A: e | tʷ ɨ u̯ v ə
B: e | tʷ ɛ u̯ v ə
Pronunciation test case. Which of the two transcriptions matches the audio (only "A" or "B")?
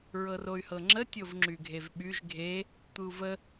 A